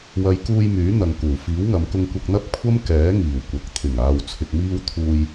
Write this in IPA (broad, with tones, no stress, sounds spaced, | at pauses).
w ɐ˨˧ j k uː˧ j m yː˨˥ n̪ ɐ˨ ŋ k uː˨˩ f iː˨˥ w ŋ ɐ˨˧ m k ʊ˧ ŋ kʷ ɐ˧ k̚ n̪ ɐ˥ p̚ kʷʰ ɐ˥ m k ɛː˨˥ ŋ iː˨˩ w kʷ ɐ˨ k̚ t̪ʰ ɪ˨˩ ŋ aː˨ w t͡sʰ ɪ˨ k̚ m iː˧ w t̪ʰ uː˧ j